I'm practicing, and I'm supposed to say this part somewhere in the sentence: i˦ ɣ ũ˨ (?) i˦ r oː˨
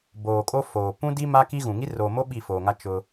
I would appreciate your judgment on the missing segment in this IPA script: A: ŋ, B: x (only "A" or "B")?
A